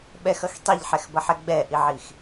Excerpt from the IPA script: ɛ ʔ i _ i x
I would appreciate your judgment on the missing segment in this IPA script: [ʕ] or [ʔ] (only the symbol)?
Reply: ʕ